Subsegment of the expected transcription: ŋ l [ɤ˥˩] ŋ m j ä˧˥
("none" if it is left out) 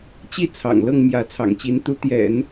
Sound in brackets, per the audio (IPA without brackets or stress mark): ɤ˥˩